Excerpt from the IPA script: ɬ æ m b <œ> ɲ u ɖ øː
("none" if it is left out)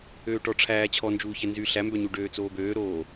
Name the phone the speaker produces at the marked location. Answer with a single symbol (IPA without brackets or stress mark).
œ